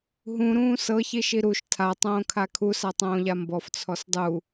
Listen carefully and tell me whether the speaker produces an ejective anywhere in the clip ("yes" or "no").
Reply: no